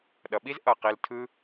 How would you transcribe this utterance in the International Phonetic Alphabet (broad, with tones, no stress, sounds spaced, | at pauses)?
ɗ ʌ˨ ɓ i˦ z ʔ ʌ˦˨ q i˧ l tʰ ɯ˦